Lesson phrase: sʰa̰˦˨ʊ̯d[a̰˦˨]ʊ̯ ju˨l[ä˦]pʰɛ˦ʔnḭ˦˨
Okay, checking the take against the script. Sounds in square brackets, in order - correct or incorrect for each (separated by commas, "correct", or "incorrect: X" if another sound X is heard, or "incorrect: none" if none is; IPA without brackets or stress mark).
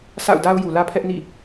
incorrect: a˦, correct